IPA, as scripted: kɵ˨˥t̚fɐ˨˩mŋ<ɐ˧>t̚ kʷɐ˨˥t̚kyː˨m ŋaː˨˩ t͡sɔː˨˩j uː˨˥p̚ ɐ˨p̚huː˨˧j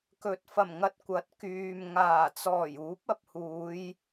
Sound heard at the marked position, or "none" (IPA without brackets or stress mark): ɐ˧